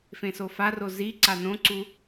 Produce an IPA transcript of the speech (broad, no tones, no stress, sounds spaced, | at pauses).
f ẽ s o f a r o z i ǀ a n õ ǀ u